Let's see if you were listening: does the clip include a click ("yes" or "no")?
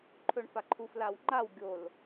yes